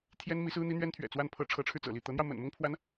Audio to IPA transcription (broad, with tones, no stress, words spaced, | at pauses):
t̪ʰjɛ˥n mi˧˥sɹ̩˥n̪i˥ n̪ɥɛ˥nt̪ʰɥɛ̰˨˩ t͡swa˥˩npʰɤ˥ ʈ͡ʂʰɤ˧˥ʈ͡ʂʰɻ̩˧t͡sɤ̰˨˩li˥˩ t̪ɤ˧˥n̪jɑ˧ʊ̯mə̰˨˩n mʊ˥ŋpʰwa˧˥n